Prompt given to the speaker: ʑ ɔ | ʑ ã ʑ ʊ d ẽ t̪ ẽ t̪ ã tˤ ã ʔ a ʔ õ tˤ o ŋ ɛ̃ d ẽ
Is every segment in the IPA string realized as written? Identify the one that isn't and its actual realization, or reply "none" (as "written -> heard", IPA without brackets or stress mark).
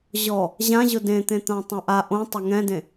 none